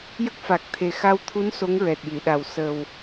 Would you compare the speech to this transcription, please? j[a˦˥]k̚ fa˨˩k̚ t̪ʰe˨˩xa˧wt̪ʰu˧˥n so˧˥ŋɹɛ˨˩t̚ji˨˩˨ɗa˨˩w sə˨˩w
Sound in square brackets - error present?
yes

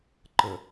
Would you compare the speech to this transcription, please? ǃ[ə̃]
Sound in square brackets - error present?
yes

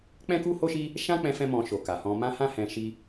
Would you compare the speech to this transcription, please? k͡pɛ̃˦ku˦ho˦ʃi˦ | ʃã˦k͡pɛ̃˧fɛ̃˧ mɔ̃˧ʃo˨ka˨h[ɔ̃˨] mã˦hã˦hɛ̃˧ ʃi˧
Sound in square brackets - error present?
yes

